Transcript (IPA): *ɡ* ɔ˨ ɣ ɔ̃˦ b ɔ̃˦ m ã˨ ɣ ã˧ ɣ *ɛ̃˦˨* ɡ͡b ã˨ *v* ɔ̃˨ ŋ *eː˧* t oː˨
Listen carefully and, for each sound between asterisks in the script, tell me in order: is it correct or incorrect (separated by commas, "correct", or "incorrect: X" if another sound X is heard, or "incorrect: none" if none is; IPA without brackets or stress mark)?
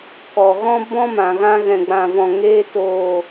incorrect: k, incorrect: ɛ̃˨, correct, correct